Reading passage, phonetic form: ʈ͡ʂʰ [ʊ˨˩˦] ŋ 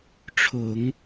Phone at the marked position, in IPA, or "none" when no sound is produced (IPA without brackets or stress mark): ʊ˨˩˦